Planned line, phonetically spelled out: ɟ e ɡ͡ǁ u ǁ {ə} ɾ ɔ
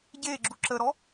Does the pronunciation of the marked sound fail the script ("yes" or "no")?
no